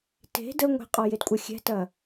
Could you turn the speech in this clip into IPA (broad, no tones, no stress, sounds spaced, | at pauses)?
t e̤ d ə ŋʷ e̤ qʼ ɔ j e d kʷʼ ɐ xʲ ɛ̤ t ɐ